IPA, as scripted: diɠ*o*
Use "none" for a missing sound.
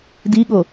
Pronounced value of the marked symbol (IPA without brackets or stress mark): o